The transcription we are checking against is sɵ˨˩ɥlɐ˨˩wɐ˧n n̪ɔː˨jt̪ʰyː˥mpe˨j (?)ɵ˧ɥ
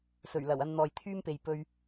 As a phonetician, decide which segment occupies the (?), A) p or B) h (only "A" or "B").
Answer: A